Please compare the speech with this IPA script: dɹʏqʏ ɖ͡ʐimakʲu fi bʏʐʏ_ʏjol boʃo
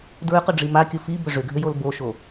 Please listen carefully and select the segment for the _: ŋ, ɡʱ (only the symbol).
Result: ɡʱ